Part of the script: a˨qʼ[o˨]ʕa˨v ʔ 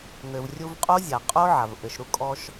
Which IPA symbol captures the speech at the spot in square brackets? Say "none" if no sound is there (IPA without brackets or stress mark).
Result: o˦